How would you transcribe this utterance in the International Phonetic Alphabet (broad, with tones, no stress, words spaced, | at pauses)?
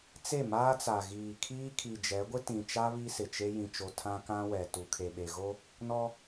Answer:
t͡se˦˨maː˦t͡sa˨ ɣiː˨ kʰiː˦kʰi˨ d͡ʒɛ˨˦ɡʷɪ˦tĩ˨t͡ʃa˦ βi˦sɪ˨t͡ʃe˦ jĩ˨t͡ʃo˨ tʰã˦kã˦wɛ˨ tu˨kʰe˨ɓe˨ɣo˦ | nɔ˦